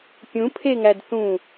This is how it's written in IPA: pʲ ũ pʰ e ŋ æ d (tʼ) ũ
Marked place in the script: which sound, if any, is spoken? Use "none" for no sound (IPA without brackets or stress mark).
θ